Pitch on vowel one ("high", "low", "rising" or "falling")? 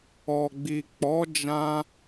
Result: low